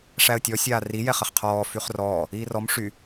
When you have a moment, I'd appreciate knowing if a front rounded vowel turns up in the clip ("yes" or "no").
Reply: yes